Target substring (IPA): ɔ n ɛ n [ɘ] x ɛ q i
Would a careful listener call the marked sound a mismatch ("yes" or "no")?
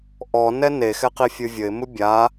yes